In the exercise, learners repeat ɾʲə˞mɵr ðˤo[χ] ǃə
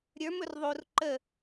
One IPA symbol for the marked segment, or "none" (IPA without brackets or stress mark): r